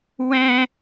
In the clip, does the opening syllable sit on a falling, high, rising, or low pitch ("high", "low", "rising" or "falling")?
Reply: high